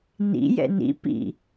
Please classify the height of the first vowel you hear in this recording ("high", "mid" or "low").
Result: high